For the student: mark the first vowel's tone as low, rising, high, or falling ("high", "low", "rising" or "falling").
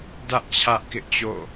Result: high